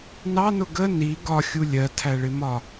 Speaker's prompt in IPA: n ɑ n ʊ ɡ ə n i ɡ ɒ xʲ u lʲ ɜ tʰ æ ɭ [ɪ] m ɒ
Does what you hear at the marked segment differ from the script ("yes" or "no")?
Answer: no